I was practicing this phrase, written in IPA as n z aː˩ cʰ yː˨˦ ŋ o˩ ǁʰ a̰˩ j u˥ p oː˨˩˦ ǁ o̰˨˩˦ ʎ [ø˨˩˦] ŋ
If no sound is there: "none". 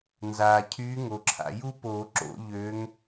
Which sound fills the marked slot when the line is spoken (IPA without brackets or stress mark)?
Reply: ø˨˦